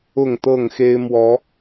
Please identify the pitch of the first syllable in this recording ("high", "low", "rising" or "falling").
falling